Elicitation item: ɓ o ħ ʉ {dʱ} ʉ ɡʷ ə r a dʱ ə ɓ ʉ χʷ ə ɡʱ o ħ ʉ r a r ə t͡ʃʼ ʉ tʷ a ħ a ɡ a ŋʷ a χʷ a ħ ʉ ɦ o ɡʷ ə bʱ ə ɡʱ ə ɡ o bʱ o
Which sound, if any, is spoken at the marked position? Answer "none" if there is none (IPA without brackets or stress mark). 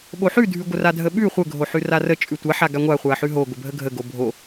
dʱ